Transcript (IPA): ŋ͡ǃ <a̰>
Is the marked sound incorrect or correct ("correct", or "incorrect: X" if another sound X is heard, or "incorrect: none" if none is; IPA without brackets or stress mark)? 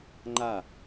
incorrect: a